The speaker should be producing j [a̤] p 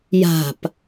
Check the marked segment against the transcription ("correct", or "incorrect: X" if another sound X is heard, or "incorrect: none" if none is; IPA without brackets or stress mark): correct